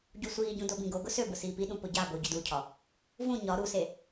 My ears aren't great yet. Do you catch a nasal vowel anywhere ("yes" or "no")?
yes